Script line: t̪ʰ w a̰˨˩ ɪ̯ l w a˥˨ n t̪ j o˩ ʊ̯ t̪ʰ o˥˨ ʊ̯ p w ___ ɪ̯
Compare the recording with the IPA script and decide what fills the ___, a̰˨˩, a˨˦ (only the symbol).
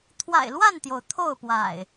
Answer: a̰˨˩